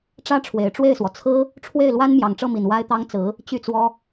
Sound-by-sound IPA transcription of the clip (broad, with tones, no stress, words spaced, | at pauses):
ʈ͡ʂä˥ʈ͡ʂʰwe˨˩ɪ̯ʈ͡ʂwe˥˩ɪ̯swɔ˩ t͡sʰɹ̩˥ | ʈ͡ʂʰwe˥˩ɪ̯lwa˥n mjɑ˨˩ŋʈ͡ʂɤ˥˩mi˨˩n wa˥ɪ̯t̪ɑ˥ŋt͡sɹ̩˧˥ | t͡ɕy˥˩t͡swɔ˥